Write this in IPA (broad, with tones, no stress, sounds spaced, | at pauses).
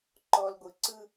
ǃ ɔ˨ l ɡʷ ɯ˨ ǀ ɯ˦